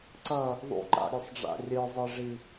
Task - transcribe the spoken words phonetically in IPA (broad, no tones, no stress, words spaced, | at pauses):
ǀʌ | ðˤṵǃa̰ɾʲesˤɖ͡ʐa̰ rʲɯzˤɯʐi